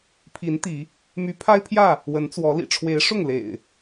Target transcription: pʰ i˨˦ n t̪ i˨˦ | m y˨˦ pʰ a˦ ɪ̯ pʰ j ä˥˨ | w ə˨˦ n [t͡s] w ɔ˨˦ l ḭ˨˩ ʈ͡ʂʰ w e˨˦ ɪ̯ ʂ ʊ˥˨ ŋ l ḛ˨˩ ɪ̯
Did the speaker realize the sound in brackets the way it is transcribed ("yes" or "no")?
yes